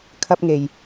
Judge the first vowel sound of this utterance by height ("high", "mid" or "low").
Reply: low